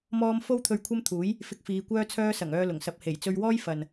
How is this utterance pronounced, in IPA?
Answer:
m ɔː˥ m f o˥ w t̪ʰ ɵ˧ ɥ kʷʰ ɐ˥ m t̪ʰ uː˨˥ j | f ɪ˧ k̚ f iː˨˧ kʷ œː˥ t͡sʰ œː˥ s ɐ˨˩ ŋ œː˧ l ʊ˨˩ ŋ s ɐ˧ p̚ h e˨˩ j t͡s ɵ˧ ɥ w ɔː˥ j f ɐ˨ n

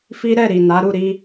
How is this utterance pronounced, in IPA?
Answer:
f i˦ ɾ ɛ˦˨ ɾ i˨ n a˨˦ ɾ u˦˨ ɾ i˧

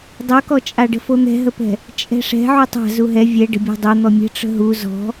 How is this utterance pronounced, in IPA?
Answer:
dˤ o k ɔ t͡ʃʼ a ɖ ə̤ f o n̪ ɛ̤ ɦ ə p ɛ̤ | t͡ʃʼ ɛ̤ ʂ ɛ̤ ʕ u tˤ a̤ z u ɦ ɛ vʲ ɛ ɖ ə̤ bʲ a̤ dˤ o n̪ ɔ mʲ ə̤ ʈ͡ʂ ə̤ ɦ u z ɔ̤

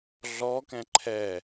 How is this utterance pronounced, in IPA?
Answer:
ɮ ɔ k ɛ̃ ǃʰ ɛ

